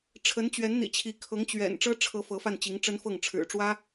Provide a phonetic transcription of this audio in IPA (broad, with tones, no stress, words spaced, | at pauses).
ʈ͡ʂʰə˧˥nt͡ɕɥɛ˧˥nn̪ḭ˨˩t͡ɕʰi˧˥ kʰɤ˧˥ŋt͡ɕɥɛ̰˨˩n ʈ͡ʂɤ˥ʈ͡ʂʰɤ˧˥ fɤ˧˥fa˥˩nt͡ɕi˧˥ŋʈ͡ʂə˥n fɤ˥˩ŋʈ͡ʂʰɻ̩˨˩ʈ͡ʂwä˥